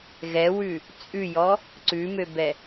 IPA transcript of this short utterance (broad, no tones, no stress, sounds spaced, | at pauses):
ɣ ɛ w ʉ | t͡sʼ ʉ j ɔ | ǀ ʉ m ø b ɛ